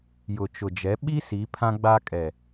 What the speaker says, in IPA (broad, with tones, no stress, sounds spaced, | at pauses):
j ʊ˨ t͡ʃ ʊ˨ d͡ʒ ɛ˨˦ ɓ i˦ s i˨˦ pʰ ã˦ ɡ͡b a˦ kʼ ɛ˨